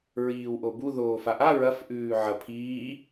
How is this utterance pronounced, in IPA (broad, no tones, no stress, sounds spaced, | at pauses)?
ɹ iː w ʔ o b u ð oː f a ʔ a ɹ ɐ f ʔ ʉː ʕ ɐ pʰ iː